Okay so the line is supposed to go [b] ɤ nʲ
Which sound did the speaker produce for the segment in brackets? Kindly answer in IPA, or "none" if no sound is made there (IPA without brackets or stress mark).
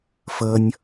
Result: f